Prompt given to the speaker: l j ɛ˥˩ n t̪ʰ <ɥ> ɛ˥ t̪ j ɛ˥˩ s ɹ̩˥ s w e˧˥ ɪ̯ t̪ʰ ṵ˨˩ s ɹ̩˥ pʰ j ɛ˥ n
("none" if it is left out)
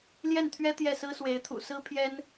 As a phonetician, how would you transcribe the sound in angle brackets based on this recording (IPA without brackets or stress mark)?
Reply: ɥ